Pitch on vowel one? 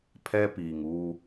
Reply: high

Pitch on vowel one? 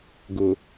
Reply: low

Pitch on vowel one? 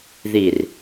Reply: low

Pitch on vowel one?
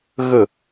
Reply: falling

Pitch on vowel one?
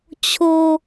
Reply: high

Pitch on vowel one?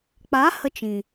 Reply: rising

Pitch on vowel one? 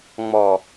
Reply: low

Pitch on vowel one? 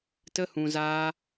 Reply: high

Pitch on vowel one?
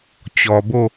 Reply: low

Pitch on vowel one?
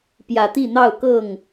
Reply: low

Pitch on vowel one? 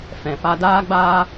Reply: low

